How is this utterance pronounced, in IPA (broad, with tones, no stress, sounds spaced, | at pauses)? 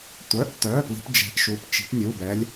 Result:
tʷ œ˩˧˩ ʔ t œ˩˧˩ p l i̤˨˥ p d͡ʒ ɛ̤˨˥ ʔ ʃ u˩˧˩ p t͡ʃ i̤˨˥ p nʲ u˩˧˩ b ɛ˨˥ lʲ